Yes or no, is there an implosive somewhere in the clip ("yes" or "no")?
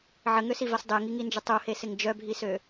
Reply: no